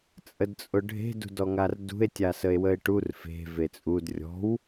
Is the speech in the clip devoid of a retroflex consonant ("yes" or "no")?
no